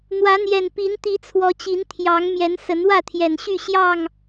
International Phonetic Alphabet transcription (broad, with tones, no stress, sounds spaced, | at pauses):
n̪ w ä˨˦ n̪ j ɛ˨˩ n p i˨˦ n t̪ i˨˦ t͡sʰ w ɔ˨˦ t͡ɕ i˨˦ n t̪ʰ j ɑ˨˦ ŋ m j ɛ˨˦ n s ə˨˦ n w ä˥˨ t̪ʰ j ɛ˨˩ n ɕ y˥˨ ɕ j ɑ˥˨ ŋ